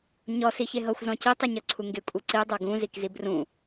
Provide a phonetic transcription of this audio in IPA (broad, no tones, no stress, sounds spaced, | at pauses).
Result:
ɲ ɔ s i ç e ɦ ɤ xʷ z ɔ̃ c i tˤ i ɲ ɤ ǀʰ u ŋ ɡ e kʷʼ i ǀ i dˤ ɤ ɡ ũ z i k z i b r ũ